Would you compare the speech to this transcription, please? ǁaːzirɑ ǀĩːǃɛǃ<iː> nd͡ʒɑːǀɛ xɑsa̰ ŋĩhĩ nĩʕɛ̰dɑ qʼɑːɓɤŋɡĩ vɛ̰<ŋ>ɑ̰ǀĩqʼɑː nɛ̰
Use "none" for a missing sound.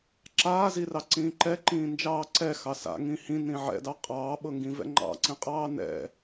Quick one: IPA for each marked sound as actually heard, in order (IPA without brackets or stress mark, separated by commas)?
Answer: ĩː, ŋ͡ǃ